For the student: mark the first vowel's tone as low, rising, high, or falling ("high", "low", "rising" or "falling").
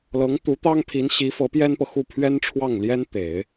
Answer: rising